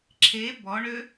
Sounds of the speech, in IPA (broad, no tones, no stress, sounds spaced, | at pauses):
ǁʰ e b ɔ ɳ ø